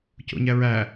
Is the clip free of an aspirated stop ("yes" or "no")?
yes